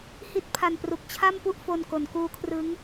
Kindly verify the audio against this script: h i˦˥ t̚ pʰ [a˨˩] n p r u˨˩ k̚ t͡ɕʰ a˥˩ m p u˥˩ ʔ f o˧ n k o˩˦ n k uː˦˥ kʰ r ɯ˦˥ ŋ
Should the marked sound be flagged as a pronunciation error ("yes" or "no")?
no